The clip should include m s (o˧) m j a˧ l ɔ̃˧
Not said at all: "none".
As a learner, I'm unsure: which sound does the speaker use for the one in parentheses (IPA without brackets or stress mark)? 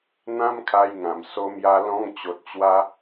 o˧